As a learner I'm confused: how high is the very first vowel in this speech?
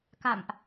low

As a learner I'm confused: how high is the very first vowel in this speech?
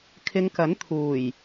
high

